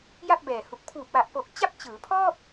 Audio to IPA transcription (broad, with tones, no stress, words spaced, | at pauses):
ja˥˩p̚bɛː˨˩hu˨˩k̚ pʰuː˨˩p̚wa˨˩ʔpo˨˩k̚ t͡ɕa˥˩p̚t͡ɕɯː˩˦pʰɔː˥˩p̚